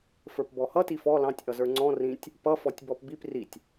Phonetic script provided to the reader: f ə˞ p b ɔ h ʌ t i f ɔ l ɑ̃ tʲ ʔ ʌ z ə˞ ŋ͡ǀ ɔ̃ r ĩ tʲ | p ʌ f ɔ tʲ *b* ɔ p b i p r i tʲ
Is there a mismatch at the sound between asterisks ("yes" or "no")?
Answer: no